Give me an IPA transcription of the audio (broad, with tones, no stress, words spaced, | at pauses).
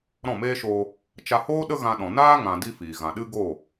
ɾɔ̃˦˨meː˦ʃoː˧ | t͡ʃa˧hoː˦ ɗə˦ɣã˧ɗɔ̃˨ naː˦ ŋã˧di˦fiː˨ ɣã˨ɗɨ˦ɡoː˦˨